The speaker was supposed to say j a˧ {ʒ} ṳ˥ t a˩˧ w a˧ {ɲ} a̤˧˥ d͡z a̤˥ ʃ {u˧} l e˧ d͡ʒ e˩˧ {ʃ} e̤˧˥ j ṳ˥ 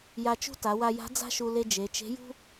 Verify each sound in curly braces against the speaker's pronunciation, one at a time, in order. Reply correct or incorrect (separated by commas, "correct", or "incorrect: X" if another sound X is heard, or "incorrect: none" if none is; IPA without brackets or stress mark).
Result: incorrect: t͡ʃ, incorrect: j, correct, incorrect: t͡ʃ